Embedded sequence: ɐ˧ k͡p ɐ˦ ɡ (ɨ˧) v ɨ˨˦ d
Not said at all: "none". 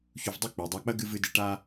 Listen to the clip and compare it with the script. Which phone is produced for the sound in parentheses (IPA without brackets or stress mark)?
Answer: ɨ˧